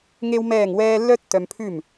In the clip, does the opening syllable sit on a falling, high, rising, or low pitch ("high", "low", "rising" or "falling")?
high